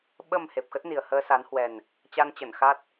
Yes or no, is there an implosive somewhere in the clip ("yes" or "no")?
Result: yes